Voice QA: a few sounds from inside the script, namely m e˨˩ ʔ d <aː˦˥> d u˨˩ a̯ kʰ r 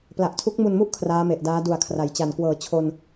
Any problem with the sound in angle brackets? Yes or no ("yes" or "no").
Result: no